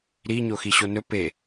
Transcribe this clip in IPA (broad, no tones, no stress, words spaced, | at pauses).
ɾi ɲoxiɕonɵ pe